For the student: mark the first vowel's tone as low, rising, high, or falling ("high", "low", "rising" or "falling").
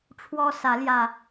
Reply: high